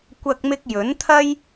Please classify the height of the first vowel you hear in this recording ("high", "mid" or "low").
low